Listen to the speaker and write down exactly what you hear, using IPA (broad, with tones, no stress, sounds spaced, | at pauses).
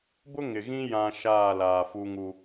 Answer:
b ʊ˦ ŋ ɪ˨ ɣ ĩ˦ j ã˦ ʃ aː˦˨ l aː˨ f u˦ ŋ u˦